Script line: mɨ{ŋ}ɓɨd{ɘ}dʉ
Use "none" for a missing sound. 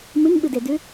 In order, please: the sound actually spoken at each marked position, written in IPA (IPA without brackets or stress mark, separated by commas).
ŋ, e